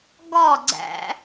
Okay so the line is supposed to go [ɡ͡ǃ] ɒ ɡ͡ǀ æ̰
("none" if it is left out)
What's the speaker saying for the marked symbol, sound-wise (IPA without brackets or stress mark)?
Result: ɡ